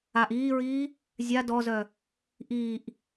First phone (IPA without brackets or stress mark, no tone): a